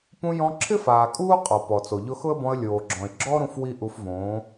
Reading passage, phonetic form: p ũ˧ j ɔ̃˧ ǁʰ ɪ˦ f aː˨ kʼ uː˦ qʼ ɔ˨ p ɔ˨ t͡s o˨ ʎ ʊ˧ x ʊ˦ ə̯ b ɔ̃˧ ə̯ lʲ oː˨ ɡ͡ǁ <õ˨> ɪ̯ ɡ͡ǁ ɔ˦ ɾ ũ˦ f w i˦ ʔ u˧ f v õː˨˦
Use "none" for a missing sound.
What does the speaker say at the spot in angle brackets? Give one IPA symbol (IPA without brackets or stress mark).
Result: ɔ̃˨